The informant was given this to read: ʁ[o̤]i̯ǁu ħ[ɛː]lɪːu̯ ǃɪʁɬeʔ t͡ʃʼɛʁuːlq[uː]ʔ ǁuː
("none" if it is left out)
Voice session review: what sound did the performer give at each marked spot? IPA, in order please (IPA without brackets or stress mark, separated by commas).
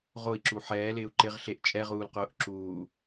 o, ɛː, ʊː